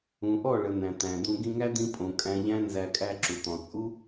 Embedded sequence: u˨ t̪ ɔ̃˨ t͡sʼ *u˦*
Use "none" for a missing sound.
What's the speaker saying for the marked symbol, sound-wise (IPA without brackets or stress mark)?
u˦